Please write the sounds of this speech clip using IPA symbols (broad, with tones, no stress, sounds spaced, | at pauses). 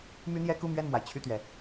m y˥ n̪ j ɛ˥ k u˥˧ m ɥ ɛ˥˩ n m w a˩ ɪ̯ t͡ɕʰ y˥˩ t̪ ɥ ɛ˩